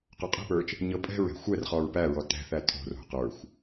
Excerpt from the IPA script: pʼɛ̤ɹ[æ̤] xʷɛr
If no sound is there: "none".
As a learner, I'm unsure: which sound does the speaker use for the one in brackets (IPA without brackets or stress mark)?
ɛ̤